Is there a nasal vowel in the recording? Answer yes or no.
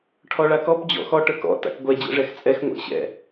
no